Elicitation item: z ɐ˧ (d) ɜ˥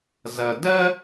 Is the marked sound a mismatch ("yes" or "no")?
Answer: no